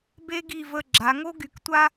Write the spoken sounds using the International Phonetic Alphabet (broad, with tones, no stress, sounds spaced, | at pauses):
b e˥ ɡ i˦˨ v ə˦˨ ɡ͡ǁ a˩˧ ŋ o˥ ɡ y˨˥ k tʷ a˥